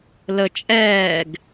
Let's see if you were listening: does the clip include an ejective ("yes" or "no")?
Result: yes